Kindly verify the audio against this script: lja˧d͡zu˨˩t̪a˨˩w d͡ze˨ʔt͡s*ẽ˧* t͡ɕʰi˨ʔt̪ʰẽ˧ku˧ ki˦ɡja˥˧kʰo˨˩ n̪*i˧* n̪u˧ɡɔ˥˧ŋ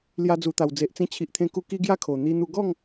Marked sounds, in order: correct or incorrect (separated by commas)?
incorrect, correct